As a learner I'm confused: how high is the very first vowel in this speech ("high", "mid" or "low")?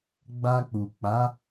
low